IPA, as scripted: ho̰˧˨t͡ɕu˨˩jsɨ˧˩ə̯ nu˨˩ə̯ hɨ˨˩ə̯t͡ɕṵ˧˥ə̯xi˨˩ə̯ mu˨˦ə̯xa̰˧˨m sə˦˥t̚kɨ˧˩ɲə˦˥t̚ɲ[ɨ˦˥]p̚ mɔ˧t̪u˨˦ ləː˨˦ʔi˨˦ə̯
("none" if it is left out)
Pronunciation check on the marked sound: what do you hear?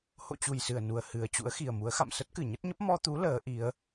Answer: ə˦˥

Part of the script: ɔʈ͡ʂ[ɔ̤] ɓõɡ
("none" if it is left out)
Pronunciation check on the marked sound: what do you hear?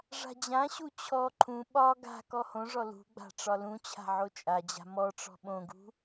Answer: ɔ̤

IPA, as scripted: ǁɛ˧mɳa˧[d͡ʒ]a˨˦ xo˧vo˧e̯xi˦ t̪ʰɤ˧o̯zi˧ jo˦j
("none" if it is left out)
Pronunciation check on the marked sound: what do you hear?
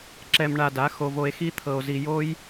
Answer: d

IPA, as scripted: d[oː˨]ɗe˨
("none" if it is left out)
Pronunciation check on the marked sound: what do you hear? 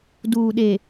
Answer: uː˨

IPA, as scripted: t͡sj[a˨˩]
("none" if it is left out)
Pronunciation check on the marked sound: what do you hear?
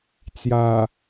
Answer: a˨˩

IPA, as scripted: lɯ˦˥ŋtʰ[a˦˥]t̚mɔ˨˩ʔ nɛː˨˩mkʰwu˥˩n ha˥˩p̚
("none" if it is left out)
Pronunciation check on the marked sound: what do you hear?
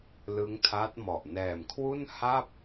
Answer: a˦˥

